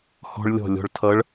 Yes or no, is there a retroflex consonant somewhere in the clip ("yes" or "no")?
yes